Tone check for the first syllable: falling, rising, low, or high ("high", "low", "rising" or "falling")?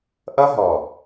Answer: high